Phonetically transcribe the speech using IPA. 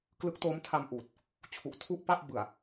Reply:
k l ɯ˦˥ k̚ t o˦˥ m tʰ a˧ m ʔ uː˨˩ t̚ | t͡ɕʰ u˨˩ ʔ tʰ u˥˩ ʔ p a˥˩ ʔ b ɯ˨˩ a̯

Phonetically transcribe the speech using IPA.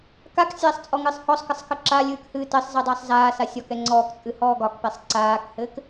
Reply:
k a k sʲ aː sˤ t͡sʼ ɔ ŋ ɨ sˤ h ɔ sˤ k ɘ sˤ k ɘ ǁ a lʲ ɨː k h ɨː t ɘ sˤ z ɘ dˤ ɘː sˤ z aː s a sʲ ɒ k ɛ ŋ͡ǀ ɔː k t͡sʼ ɨ h ɔː ɡ ɒ k p ɛ sˤ ǀ aː k h ɘː k

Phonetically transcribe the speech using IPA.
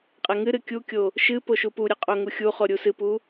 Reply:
qʼ ɛ ŋ ɨ ɾ ɨ kʲ u kʲ o | ʃ ɨ p o ʃ u p u ɾʲ ɨ qʼ o ŋ u xʲ u χ o ɾʲ u s ɨ p u

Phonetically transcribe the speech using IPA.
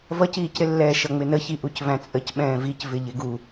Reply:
v ʌ c iː c ɾ ɪ lː ɛː ʃ ʌ ŋ͡m ɪ n ə ç i ʔ u c v æ̃ t͡sʼ ə c ɓ ɛ̃ː v i c v ɪ ʎ ɪ ɡ u

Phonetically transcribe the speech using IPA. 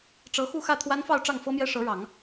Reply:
ʈ͡ʂ ɤ˧˥ x u˥˧ x ä˥˩ t̪ʰ w a˥ n f ɑ˥˧ ʊ̯ ʈ͡ʂ ɑ˥˩ ŋ f ɤ˥ m j ɛ˥ ʂ ɤ˧˥ ɻ ɑ˨˩˦ ŋ

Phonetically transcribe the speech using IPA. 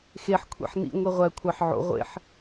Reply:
x e ħ kʷʰ ḛ ħ n ḭ ŋʷ e ʁʷ æ kʷʰ ɑ ħ ʕ o̰ ʁʷ ḛ ħ

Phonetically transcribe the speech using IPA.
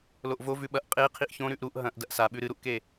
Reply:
l o ʔ v o v ʉ ɓ ɐ ʔ qʼ e qʰ i ʔ ç õ ɾ ʉ ʔ ɾ u ʔ ɦ ɐ̃ ʔ d ɐ ʔ s a ɓ ʉ ɾ ɨ ɾ u ʔ k e

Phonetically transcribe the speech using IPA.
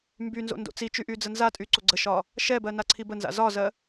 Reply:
m b y n z o̰ n d o̰ t͡s i t͡ʃ y ʔ y d͡z ə n z a tʼ y ǀ o ɡ͡ǀ ə ʃ ɒ | ʃ ɛ b ɜ n a ǀʰ i b ə n z a̰ z ɒ z ɜ

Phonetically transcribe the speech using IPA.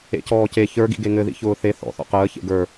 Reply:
ḛ c ɔː c e ç ə˞ ɡ ḭ ɡ e ŋ ɘ ð ḭ ç ʊː θ e θ ɔ̰ θ ɔ̰ q əː ç ḛ ɡ ə˞

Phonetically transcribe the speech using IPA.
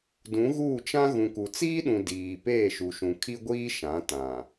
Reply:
d ũ˨˦ ɣ uː˦˨ t͡ʃ ã˦ ɣ ũ˨ k u˨ t͡s iː˦ ɗ ũ˨ d iː˨ p eː˦˨ ʃ u˨ ʃ ũ˨ kʰ i˦ ɡʷ iː˦ ʃ ã˨˦ t ã˨

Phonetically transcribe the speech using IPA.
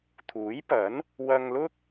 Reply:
t̪ʰ uː˨˥ j p ɐ˨˥ n | w ɐ˧ ŋ l ʊ˥ k̚

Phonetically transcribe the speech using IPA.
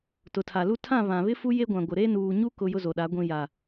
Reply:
t ʊ˨ tʰ a˨ l u˦ tʰ ã˦˨ β ã˨ β ɪ˦ f u˦ j e˦ ɡʷ ã˨ ɡʷ ɪ˨ ɾ e˦ n uː˨ ɲ u˦ k ʊ˦ j ʊ˦ z o˨ ɗ a˨˦ ɡʷ ĩ˨ j a˨

